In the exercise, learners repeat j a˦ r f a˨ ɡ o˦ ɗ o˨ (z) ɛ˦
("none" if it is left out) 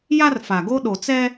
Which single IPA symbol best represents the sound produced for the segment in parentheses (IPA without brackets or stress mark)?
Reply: t͡s